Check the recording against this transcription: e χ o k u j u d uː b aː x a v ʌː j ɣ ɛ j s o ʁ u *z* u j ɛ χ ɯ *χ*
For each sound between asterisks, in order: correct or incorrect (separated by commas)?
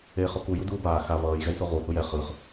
incorrect, correct